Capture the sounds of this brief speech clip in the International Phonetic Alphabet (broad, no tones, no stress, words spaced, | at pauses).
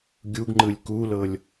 ɡʲuɡŋ͡ǃɯlʲ kulɤlʲ